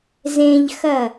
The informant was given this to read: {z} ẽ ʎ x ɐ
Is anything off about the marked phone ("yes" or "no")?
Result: no